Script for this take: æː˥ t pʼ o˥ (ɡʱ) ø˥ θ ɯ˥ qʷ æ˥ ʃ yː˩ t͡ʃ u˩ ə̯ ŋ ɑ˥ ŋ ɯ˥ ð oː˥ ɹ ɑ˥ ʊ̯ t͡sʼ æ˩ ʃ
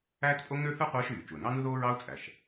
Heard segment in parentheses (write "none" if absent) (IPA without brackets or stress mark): ŋ